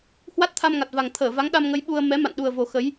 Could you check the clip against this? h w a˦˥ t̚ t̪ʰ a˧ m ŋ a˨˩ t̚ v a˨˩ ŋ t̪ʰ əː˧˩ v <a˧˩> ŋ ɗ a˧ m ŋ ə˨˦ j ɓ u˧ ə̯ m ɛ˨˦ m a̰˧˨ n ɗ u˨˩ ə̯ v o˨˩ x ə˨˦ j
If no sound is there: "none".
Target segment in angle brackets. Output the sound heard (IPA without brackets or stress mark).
a˨˦